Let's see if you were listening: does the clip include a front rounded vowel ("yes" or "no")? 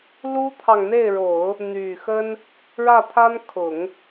yes